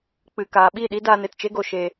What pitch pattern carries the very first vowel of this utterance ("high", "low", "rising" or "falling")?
low